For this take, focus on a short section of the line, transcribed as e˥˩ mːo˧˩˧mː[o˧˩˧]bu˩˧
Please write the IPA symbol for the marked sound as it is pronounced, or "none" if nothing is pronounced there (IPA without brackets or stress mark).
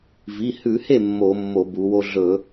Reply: o˧˩˧